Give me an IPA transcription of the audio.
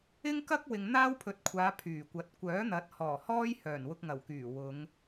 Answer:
ɪ˥ ŋ k ɐ˥ k̚ w ɪ˨ ŋ n̪ aː˥ w pʰ ɵ˨˥ t̚ kʷʰ aː˨˧ pʰ yː˨˩ kʷ ɐ˨˥ t̚ kʷ œː˨˥ n̪ ɐ˨˥ t̚ h ɔː˨˩ h ɔː˥ j h œː˨˩ n w ʊ˧ k̚ ŋ ɐ˨˩ w k yː˨˩ w ʊ˨˧ ŋ

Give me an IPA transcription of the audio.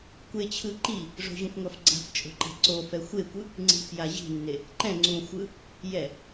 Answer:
kʷ e t͡ɕʰ ɯ ǃ i | ʐ o̤ ʑ ũ f ŋʷ a f ɡ͡ǀ a̤ f t͡ʃʼ o̤ ǃ a̤ ǀ o f ɛ xʷ e kʷ ɯ | ŋ͡ǀ i̤ f j a ʑ i̤ nː e | ǃ ɛ̃ ŋ͡ǀ ũ xʷ ɯ | j ɛ

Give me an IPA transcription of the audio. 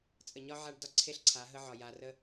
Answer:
t͡sʼ ə˨ ɲ ɒ˦ ʕ a˦ ɖ d ɒ˦ ǀʰ e˦ ɬ ǀʰ a˨˦ ɦ ə˦ ʕ ɒ˨ j a˨ r ə˦

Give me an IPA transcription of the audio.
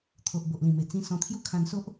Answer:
t̪ʰ o˨ ʔ b o˨ ʔ l ĩ˨˩ m e˨˩ t͡s ĩ˧ s ɔ̃˧ t̪ʰ j u˥˧ kʰ ã˦ n s o˦ ʔ

